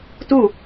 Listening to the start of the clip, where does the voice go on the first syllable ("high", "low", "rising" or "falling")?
falling